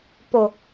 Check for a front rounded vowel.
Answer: absent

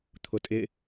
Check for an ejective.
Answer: present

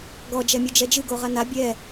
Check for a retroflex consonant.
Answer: absent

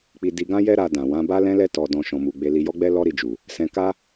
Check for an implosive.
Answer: absent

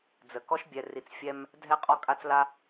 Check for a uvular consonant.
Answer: present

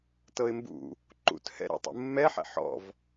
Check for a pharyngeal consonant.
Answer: present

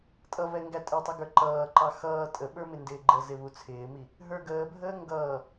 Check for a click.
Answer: present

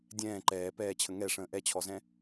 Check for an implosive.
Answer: absent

